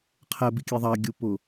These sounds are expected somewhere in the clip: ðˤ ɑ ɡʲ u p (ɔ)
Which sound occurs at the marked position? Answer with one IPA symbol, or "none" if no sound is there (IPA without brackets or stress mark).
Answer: ʊ